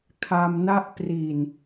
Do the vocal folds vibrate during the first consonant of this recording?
no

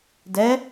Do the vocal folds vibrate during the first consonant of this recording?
yes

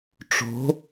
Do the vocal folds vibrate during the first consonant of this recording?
no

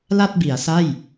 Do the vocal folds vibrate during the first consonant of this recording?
yes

